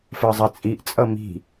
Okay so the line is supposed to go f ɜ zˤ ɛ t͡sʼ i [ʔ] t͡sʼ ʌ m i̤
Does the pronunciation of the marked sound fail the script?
no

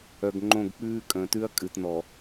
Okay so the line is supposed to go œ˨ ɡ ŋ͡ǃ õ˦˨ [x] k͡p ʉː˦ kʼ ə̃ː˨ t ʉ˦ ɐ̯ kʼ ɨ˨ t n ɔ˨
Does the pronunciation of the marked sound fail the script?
yes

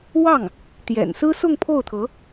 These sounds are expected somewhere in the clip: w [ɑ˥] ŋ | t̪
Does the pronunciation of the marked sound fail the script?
yes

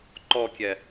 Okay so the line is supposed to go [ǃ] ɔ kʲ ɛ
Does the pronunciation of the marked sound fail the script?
no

